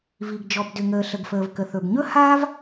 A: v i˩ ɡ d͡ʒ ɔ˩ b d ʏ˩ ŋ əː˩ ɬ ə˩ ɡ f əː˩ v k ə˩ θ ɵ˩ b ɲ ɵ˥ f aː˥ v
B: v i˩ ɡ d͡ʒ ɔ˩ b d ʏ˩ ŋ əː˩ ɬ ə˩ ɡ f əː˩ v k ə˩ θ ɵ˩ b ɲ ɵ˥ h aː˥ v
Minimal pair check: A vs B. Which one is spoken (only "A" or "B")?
B